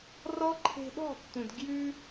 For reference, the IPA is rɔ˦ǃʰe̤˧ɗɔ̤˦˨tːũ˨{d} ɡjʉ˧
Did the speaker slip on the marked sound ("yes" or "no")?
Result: no